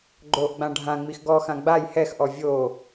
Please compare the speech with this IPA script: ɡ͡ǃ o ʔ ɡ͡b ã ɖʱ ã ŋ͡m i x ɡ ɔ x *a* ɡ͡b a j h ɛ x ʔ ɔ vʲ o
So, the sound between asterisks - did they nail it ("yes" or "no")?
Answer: no